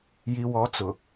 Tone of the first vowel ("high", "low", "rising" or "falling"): low